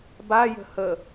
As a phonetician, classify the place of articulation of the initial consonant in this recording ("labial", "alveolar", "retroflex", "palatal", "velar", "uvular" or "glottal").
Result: labial